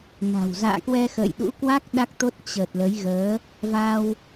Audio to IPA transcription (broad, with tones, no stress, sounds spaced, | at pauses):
n a̤˨˩ w z a̰ː˧˨ k w ɛ˧ x ə̰ː˧˨ j ɗ ṵ˧˥ k w a˦˥ k̚ ɗ a˦˥ k̚ t̪ o˦˥ t̚ t͡ɕ ə˨˩ t̚ l ə˨˦ j ɣ əː˨˦ | v a˧ w